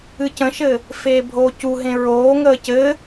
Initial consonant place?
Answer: palatal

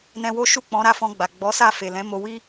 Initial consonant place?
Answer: alveolar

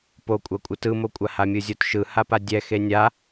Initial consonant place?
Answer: labial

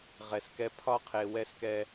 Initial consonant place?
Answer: uvular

